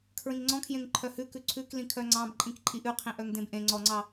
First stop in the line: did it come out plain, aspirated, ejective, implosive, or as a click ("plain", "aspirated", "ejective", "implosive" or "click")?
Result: aspirated